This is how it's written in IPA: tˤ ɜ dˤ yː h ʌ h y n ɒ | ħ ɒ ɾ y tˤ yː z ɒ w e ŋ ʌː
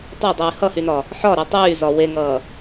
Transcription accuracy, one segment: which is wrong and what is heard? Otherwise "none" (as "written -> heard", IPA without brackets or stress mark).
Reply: none